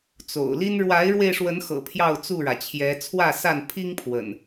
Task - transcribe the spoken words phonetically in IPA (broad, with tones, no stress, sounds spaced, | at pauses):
t͡s o̰˨˩ ʊ̯ l i˦ n ɻ w a˨˦ ɪ̯ ɻ w e˧ ɪ̯ ʂ w ə˨˦ n x ɤ̰˨˩ pʰ j ɑ˥˨ ʊ̯ t͡s u˥˨ ɻ ä˩ t͡ɕʰ j ɛ˨˦ t͡sʰ w ä˥˨ s a˥˨ n pʰ i˦ ŋ pʰ w ə̰˨˩ n